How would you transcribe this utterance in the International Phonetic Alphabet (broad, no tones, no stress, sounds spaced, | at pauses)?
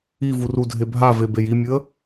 i v u r u dʱ e bʱ a v e b e j i mʲ ɨ ə̯